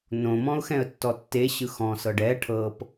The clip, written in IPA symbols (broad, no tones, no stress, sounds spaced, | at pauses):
n õ m ɔ̃ ʊ̯ x ɛ̃ ə̯ tː ɔ tː e ɕ ɯ x ɔ̃ s ɤ ɖ ɛ ʈʰ ɤ p